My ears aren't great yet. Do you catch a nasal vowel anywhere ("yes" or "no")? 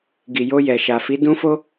yes